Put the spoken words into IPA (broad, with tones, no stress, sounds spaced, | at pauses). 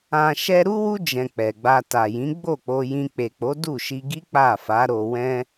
ã˨ ʃ ɛ˧ ɾ u˦ w u˦ d͡ʒ ɛ̃˧ k͡p ɛ˨ ɡ͡b a˧ t a˨ j ĩ˨˦ ɡ͡b o˦˨ k͡p o˧ j ĩ˧ k͡p e˨ k͡p o˨˦ d u˦˨ ʃ i˧ ɡ i˦ k͡p a˦˨ f a˨˦ ɾ o˧ w ɛ̃˦